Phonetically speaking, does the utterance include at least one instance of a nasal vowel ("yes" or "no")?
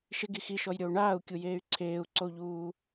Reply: no